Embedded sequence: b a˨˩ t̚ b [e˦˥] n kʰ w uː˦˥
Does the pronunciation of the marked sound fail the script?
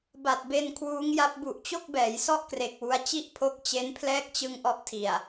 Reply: yes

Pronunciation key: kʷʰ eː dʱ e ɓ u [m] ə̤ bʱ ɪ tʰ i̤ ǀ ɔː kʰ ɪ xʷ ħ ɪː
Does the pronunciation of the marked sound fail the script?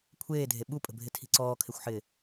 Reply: yes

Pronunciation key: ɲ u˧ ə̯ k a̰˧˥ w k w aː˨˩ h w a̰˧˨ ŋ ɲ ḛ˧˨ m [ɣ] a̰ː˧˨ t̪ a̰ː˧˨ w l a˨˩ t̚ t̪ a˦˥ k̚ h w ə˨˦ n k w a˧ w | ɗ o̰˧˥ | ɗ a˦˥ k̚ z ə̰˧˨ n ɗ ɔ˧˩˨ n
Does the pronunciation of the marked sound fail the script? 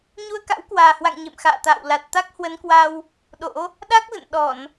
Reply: yes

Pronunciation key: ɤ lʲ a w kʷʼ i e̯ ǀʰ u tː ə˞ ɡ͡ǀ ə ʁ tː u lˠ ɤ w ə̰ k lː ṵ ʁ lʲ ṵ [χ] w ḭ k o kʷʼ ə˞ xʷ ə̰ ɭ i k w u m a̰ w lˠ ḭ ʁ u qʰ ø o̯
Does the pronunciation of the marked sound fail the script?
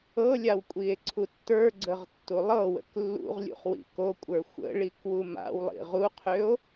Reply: no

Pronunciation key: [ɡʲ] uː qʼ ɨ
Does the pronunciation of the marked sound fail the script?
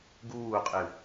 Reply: yes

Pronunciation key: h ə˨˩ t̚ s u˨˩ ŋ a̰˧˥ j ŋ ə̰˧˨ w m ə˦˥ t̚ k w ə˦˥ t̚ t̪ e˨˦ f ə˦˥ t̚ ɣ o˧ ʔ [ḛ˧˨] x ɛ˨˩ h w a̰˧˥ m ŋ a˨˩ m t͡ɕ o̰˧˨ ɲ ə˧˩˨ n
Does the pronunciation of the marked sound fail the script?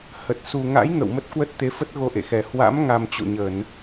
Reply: no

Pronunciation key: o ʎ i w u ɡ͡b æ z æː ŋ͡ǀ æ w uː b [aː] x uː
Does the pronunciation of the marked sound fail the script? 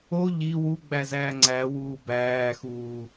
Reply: yes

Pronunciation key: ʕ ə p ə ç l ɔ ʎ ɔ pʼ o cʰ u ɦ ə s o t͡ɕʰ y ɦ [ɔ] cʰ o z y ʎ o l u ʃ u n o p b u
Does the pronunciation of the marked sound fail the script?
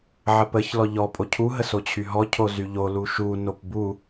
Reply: no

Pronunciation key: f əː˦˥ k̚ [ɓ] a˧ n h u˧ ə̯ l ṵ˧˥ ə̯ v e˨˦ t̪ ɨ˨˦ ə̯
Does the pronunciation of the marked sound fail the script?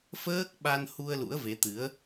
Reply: no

